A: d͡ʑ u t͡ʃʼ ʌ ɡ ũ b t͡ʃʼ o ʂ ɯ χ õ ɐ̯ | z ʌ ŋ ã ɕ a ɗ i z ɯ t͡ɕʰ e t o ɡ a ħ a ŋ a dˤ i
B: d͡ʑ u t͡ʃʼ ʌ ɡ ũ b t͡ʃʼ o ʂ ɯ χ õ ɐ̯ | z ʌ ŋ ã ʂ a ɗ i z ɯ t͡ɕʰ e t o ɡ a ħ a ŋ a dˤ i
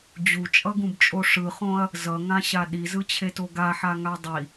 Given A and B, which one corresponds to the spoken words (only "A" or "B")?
A